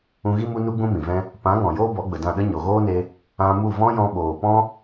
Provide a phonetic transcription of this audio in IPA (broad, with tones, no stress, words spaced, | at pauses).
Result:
ũ˧ɣi˦mu˦nu˦ ɡ͡bũ˦mĩ˨vɛ̃˦ | pã˨˦ŋɔ̃˨ joː˦bɔ˨˦ɡ͡bə˨dã˦˨ ɗə˦ɲo˨ɣoː˦ne˧ | ã˧mu˦˨vɔ̃˦jɔ̃˧ ɓoː˨pɔ̃˦